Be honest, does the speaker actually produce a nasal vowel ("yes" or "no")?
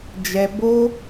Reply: no